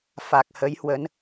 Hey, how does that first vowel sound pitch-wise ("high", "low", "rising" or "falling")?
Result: low